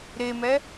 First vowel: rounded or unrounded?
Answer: unrounded